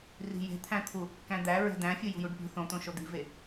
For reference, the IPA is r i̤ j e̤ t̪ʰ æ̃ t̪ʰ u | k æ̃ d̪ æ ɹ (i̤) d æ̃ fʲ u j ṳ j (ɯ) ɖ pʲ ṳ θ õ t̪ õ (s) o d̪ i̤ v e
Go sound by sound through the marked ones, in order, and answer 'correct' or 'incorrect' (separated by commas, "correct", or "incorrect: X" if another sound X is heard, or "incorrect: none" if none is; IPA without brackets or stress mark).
incorrect: e̤, incorrect: u, incorrect: ʃ